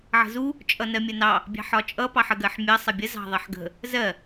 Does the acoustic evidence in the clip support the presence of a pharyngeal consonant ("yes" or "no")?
yes